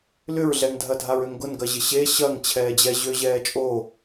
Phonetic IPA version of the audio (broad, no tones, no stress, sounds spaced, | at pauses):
l ʏ ɹ ɮ ɛ ŋ dʱ ɐ dʱ a ɹ ø ŋ ɡ ʊ n ɡ ɐ ʑ ɪ ɕ e ɕ ɐ ŋ t͡ɕʰ ɛː d͡ʑ ɛ ʑ ø ʑ ɛː t͡ʃʼ o